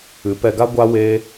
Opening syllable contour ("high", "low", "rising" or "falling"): rising